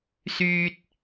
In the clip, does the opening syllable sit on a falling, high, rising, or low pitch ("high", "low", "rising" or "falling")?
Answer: high